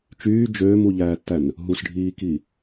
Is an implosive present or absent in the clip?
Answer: absent